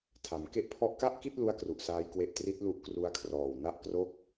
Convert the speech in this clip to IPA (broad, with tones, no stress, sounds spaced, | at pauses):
tʰ a˩˦ m k e˦˥ ʔ pʰ ɔ˦˥ ʔ k a˥˩ ʔ k i˥˩ t̚ l u˥˩ a̯ k r u˨˩ ʔ s aː˦˥ j k w e˦˥ ʔ t r i˦˥ t̚ l u˦˥ ʔ k r u˦˥ a̯ kʰ r ɔː˨˩ w n a˥˩ ʔ k r o˥˩ k̚